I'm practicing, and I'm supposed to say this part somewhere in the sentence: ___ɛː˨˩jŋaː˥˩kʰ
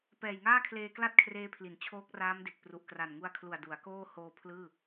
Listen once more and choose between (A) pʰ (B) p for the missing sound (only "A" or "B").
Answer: B